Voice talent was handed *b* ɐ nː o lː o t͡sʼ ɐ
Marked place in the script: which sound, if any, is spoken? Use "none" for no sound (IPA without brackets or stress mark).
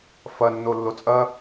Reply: f